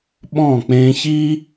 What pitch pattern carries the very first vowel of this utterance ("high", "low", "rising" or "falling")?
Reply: falling